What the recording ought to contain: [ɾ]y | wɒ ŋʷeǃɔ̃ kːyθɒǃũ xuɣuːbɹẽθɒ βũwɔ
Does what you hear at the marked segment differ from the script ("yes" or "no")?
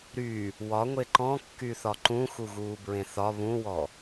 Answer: no